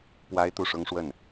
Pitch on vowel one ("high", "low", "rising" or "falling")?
high